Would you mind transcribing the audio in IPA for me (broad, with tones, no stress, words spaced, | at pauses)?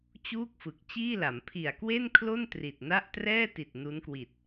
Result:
t͡ɕuː˥˩k̚fɯ˨˩k̚ t͡ɕiː˥˩la˩˦m pʰi˨˩a̯kwe˥˩nkʰlo˥˩n tri˨˩t̚na˥˩ʔ trɛː˥˩ti˨˩t̚ nu˦˥nkwi˨˩t̚